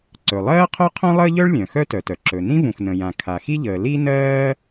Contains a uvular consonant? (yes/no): yes